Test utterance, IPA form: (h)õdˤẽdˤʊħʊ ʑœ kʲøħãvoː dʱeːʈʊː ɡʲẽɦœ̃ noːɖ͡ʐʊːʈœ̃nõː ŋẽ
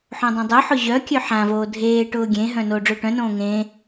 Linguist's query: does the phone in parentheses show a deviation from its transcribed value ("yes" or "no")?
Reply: yes